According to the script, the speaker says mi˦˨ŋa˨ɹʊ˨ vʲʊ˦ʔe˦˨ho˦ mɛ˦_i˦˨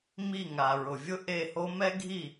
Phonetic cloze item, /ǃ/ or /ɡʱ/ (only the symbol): ɡʱ